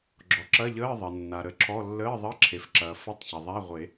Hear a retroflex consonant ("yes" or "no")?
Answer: no